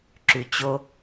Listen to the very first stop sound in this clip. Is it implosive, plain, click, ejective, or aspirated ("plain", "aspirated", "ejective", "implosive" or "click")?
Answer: click